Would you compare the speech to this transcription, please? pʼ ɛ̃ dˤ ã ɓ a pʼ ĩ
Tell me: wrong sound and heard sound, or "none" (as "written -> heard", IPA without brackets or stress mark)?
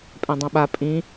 none